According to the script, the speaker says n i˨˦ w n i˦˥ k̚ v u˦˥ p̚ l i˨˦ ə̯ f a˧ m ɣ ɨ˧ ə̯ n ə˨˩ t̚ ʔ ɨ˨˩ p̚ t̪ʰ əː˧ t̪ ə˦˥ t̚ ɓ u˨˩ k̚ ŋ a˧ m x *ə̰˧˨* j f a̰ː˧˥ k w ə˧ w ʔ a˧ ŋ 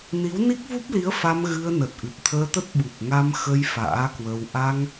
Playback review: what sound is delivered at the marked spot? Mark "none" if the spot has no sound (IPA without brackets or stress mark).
ə˧